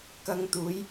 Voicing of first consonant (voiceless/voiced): voiceless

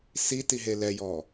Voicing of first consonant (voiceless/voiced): voiceless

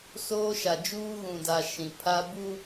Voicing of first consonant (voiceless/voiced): voiceless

